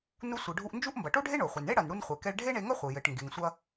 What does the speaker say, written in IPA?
nu˧ sʷɨ˩ ɖʱu˧ʔnd͡ʒu˥ʔ mbɐ˩ʈo˥ɖʱe˥ ɳo˩χʷɨ˩nɳe˥ ɽɐ˩nɽu˧nχʷe˩kɛ˧ɭ ɖʱe˥ɳe˧ŋɐ˥χʷɨ˩ jɘ˩ʈ ŋɡe˩ŋsʷɐ˧

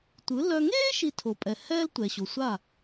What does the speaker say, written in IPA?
tʷɯ˩˥ lœ˧ ŋeː˥ ʃi˧tʰo˩pʼɛ˩ hɛː˥ltʷɛ˩ɕo˩sʷa˥˩

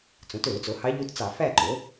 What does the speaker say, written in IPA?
t͡sõ˩˥tø˧˩˧ʊ̯t͡so˩˥hɑ˧˥ ʎu˧˥tt͡sɑ˧˩˧ fæ˥˨ǃo˩˥

